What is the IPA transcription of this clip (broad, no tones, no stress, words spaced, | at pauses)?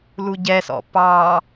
luɟɛsɔ̰ pɑ